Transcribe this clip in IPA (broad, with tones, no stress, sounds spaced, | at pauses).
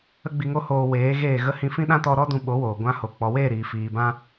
ə˦ ɡ͡b i˧ ŋ o˦ h oː˧ w eː˨˦ ɣ eː˦˨ ɣ ə˦ h ĩ˧ f ĩ˦ ɗ ã˦ t ɔ˧ ɾ ɔ˦ d ũ˧ ɓ o˨˦ w oː˨ ɡʷ ã˧ h o˨ k͡p ɔ˨ w eː˦˨ ɾ iː˨ f iː˨ b ã˧